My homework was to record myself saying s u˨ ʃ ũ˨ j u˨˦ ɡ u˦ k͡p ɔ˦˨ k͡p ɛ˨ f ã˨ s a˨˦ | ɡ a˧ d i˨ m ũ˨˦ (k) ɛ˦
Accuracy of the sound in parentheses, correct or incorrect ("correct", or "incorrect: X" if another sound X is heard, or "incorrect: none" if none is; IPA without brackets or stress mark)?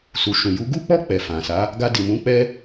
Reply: incorrect: k͡p